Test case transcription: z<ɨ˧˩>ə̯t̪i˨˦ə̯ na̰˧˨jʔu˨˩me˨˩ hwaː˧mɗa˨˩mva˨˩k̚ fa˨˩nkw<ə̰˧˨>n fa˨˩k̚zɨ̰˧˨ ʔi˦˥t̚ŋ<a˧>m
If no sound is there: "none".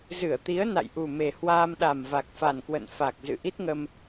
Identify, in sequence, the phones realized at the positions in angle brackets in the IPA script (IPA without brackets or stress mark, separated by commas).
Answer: ɨ˧˩, ə̰˧˨, ə˧